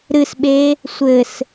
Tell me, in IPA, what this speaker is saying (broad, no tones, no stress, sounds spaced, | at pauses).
ɾ ɨ s ɓ e | sʷ ɘ s